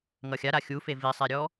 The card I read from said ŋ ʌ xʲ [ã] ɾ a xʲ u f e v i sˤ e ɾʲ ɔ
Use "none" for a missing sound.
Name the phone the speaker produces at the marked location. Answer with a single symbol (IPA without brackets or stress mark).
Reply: a